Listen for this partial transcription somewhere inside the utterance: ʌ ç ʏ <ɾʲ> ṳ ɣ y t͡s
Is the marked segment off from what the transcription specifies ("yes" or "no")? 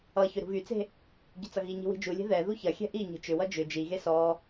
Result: yes